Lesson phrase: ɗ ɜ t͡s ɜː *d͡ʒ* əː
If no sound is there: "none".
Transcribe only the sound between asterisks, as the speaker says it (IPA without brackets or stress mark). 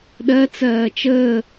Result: t͡ʃ